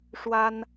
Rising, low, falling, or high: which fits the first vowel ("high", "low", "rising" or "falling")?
high